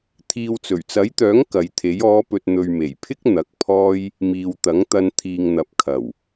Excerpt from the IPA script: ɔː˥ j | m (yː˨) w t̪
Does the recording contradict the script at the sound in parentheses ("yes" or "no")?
yes